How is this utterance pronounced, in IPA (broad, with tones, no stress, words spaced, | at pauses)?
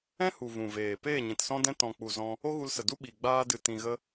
ɛ̃˦hu˨ vũ˨ veː˨ peː˦˨ɲĩ˨tsɔ̃˦dɛ̃˦ tɔ̃˨k͡pu˨ zɔ̃˧ | o˦ɣu˧lsə˨du˦ ɓi˨ ɡ͡baː˧dɨ˨ tĩ˨ɣə˦